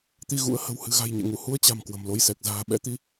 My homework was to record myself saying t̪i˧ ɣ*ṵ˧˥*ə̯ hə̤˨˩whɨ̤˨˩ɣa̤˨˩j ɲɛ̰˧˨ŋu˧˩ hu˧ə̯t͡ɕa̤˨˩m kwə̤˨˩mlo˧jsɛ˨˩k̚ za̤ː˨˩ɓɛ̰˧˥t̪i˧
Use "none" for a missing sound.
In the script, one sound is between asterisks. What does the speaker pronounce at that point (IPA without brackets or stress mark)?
ṵ˧˥